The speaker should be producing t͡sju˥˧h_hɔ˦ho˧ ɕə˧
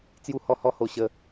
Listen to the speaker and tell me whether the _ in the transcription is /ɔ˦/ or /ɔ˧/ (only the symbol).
ɔ˦